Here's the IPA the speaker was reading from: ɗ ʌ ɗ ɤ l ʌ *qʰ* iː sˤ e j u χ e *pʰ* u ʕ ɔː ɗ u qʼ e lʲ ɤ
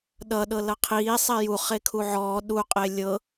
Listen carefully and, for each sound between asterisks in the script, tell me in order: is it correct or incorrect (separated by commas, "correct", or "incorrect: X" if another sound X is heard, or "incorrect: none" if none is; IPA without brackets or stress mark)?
correct, incorrect: kʰ